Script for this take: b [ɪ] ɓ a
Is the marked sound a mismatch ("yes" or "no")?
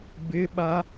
no